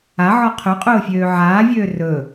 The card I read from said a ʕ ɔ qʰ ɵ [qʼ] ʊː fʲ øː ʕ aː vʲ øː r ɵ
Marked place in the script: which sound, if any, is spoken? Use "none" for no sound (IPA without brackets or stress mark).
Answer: qʼ